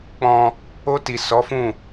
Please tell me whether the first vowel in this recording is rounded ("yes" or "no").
yes